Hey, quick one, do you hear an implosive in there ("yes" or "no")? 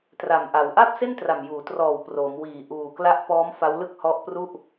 no